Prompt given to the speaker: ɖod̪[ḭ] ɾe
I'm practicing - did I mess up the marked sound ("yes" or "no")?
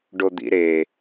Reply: no